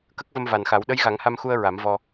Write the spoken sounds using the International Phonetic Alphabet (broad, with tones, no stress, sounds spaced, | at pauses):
k ə˦˥ k̚ v ə˧ m v a˨˩ n x a˨˩˦ w ɗ ə˧˥ j ɣ a˨˩˦ ŋ h a˧ m x u˧ ə̯ ɹ a˨˩˦ m v ɔ˧